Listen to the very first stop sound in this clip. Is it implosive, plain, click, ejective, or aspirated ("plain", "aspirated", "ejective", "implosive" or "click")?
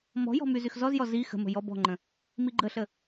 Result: plain